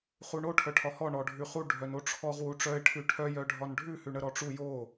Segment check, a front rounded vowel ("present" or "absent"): present